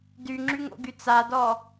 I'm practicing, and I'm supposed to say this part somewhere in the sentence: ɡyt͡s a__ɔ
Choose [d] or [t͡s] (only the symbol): d